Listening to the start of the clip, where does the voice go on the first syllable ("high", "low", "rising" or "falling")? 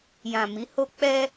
low